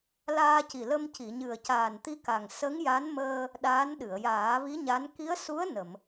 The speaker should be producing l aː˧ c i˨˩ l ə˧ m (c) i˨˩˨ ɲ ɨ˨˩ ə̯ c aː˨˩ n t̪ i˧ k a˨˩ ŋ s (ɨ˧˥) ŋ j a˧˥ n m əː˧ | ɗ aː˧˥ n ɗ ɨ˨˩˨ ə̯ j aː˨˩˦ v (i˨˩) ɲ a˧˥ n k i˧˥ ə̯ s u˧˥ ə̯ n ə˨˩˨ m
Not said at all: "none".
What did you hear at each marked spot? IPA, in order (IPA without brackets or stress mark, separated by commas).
c, ə˧˥, i˧˥